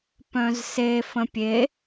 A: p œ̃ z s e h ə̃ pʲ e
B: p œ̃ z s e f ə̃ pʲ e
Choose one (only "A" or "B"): B